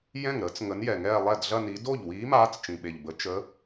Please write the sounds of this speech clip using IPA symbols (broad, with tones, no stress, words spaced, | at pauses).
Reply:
jɛ̃˥˩ŋ ɾəː˨˥t͡s ŋə˨˥njɛ˨˩ŋɛː˥˧ lˠɛ˥˩dɮɐ˥˧ni˨˥ do˥˩ʎwiː˨˥ maː˦˥t͡st͡ʃĩ˨˩ɓe˨˩ʎbə˨˥ t͡ʃə˨˥